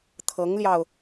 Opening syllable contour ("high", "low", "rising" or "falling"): rising